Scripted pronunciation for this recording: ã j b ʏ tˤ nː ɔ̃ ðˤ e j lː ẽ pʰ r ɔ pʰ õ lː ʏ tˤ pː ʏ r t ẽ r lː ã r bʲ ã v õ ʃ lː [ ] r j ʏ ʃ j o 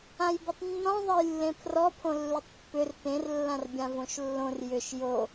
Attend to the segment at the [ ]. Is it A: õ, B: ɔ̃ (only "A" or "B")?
A